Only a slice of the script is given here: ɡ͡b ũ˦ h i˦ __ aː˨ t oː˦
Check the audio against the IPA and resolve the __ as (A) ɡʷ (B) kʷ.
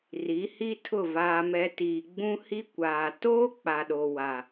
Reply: B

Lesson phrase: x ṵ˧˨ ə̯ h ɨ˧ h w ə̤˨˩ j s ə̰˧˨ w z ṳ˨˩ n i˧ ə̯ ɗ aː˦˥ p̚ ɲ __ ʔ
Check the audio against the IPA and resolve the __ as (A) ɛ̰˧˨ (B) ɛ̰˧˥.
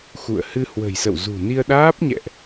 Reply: A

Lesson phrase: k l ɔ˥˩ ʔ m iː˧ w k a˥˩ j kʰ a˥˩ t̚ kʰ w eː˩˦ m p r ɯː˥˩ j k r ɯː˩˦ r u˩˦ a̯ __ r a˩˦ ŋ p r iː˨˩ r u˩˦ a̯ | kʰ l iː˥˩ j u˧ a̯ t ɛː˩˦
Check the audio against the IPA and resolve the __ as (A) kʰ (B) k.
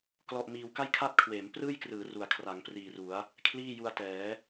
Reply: A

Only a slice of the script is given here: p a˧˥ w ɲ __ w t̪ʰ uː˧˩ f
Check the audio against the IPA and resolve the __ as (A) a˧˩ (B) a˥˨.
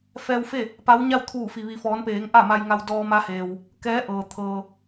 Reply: B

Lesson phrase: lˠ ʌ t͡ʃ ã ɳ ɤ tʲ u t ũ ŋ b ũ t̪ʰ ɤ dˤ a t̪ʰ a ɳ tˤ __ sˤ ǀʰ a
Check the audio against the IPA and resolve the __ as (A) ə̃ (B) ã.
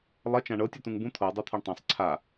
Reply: B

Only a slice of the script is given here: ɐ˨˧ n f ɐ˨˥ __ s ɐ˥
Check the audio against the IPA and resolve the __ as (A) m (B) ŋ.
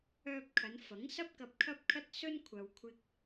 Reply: B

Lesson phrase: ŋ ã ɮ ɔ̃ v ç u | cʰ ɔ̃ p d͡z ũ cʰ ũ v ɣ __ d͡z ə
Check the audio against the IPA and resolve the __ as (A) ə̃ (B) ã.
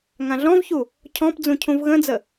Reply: A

